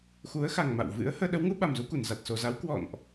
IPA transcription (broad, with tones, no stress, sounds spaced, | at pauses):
x u˨˦ ə̯ x a˨˩ ŋ m a̰˧˨ w v ɨ̰˧˥ ə̯ h əː˧ ɗ ə˨˦ w ŋ u˨˦ ɓ a˨˩ m z u˧ k u˧˩ n z a˨˩ t̚ s o˨˩ z a˨˦ w k w ɔ̰˧˨ n ʔ